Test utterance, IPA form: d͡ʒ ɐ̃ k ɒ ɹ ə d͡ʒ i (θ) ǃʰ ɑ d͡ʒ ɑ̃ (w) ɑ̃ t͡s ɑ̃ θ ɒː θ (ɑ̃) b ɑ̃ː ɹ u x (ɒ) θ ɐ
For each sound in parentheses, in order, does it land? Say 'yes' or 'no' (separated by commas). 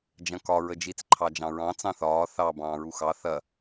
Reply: no, no, no, no